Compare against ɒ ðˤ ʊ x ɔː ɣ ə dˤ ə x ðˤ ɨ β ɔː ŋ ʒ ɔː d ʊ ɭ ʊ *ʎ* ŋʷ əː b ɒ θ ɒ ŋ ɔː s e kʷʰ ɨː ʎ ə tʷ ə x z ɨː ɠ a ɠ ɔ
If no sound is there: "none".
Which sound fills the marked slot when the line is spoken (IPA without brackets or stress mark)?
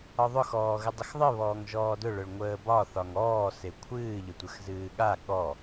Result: ɭ